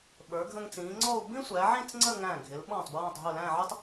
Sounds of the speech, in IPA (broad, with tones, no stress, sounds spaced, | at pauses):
ɓ ə˞˩˧ ɡʱ ə̃˧ ŋ t͡s ĩː˩˧ ŋ͡ǀ ɔ˥˧ u̯ b ĩ˥ sʷ æ˩˧ ʕ ĩ˥˧ t͡s ŋ͡ǀ ə˥˧ ŋ æ̃˧˩ ɡʱ ɪ˩˧ l ɓ ɔ̃˧˩ tˤ b ɹ ɔ̃˧˩ tˤ ɦ ʊ˧˩ l æ̃˥˧ ʕ ʊ˥ tˤ